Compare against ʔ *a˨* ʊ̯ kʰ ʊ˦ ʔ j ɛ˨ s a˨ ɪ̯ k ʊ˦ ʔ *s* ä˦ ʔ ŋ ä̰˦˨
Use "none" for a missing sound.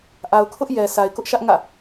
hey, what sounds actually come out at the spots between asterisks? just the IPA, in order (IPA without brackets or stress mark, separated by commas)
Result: a˨, ʃ